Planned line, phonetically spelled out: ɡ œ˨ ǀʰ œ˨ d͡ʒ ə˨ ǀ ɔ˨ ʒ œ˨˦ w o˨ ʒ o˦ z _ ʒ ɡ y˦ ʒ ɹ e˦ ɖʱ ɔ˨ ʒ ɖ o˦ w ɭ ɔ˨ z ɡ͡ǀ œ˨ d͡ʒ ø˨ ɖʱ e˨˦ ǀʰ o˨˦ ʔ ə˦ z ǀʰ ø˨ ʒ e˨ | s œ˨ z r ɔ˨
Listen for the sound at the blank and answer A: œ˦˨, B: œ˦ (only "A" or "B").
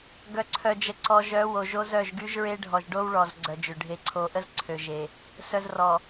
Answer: A